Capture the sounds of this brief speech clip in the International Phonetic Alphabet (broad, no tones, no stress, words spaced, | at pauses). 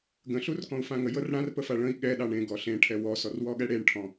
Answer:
ɡə̃ɬurkɔ̃u̯ fãŋə jɤrɽãrpəfa ɭə̃i̯ ɠɛ ɗɑɳẽ ɡɔɬẽʈʰɛ wɔsɔrwɔɠɛ ɽeɳʈʰɔ̃